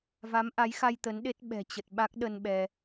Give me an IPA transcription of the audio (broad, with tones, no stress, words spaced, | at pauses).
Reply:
va˨˦mʔa˨˦jxa˧j t̪ə˨˦n ɗe˦˥t̚ ɓɛ̤˨˩t͡ɕə˨˩t̚ɓa˦˥k̚ ɗə˧n ɓɛ˧